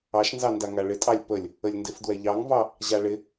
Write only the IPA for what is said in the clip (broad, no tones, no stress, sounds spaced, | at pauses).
ɑ ʃ n z ɑ n d a ŋ a ɭ ɪ tʼ ɑ lʲ p ə lʲ | ə lʲ n d ɪ f d w ɛ ʎ ɑ ŋ v ɑ | ʑ a ɭ ɪ